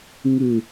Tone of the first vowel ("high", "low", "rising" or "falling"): low